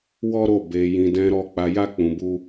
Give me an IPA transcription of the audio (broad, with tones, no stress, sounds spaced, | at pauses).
w ɔ˦ ɾ o˦˨ b e˧ j ĩ˧ d ɛ̃˧ ɾ ɔ˧ k͡p a˧ j a˦ k͡p ũ˧ b u˦